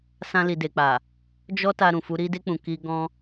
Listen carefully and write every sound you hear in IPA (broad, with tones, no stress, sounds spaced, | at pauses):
s ã˧ l i˨ d e˨ k͡p a˨ | d͡ʒ ɔ˦ t a˧ ɾ ũ˨ f u˧ ɾ i˧ d e˧ k͡p ũ˨ k i˧ ɡ ɔ̃˧